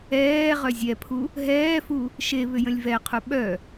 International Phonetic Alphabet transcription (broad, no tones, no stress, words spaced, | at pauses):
ɛː ʁœzʲɛpʰu | ɦɛːfu | ʃe βʏjə̃lʲvɛqʰu ɓœ